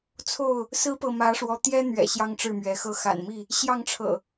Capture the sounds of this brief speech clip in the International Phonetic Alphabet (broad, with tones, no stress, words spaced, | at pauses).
t͡sʰo˥˨ʊ̯ | sɹ̩˦pɤ˨ mä˨˦ʂwɔ˨˦t̪jɛ˦ n̪ɥɛ̰˨˩ ɕjɑ˦ŋʈ͡ʂɻ̩˥˨mɥɛ˨˦xɤ˦ xa̰˨˩nmi˥˨ | ɕjɑ˥˨ŋʈ͡ʂʰɤ̰˨˩